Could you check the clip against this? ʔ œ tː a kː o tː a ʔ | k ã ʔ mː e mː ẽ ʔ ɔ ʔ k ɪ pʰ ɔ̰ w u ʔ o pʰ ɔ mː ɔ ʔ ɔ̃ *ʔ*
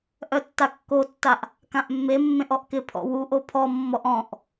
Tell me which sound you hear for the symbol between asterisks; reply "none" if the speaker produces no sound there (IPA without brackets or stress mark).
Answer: ʔ